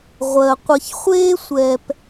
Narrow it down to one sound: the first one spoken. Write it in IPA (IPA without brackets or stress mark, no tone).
ʁʷ